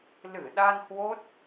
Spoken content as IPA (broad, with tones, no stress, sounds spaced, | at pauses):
l ɨ˧˩ ɗ a˧ n h w o˦˥ t̚